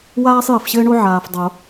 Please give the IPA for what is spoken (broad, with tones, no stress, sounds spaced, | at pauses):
w aː˥ sˤ j ɘ˨ f ɕ ɘː˥ ɳ o˥ ʕ aː˨ f dˤ o˨˩˦